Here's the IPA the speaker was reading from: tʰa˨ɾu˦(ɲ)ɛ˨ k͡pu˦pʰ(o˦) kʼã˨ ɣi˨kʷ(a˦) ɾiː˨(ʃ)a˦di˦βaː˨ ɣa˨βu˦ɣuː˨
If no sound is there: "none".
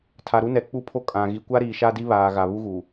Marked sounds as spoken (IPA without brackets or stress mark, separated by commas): n, o˦, a˦, ʃ